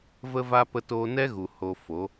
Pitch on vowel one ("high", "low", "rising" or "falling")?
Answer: high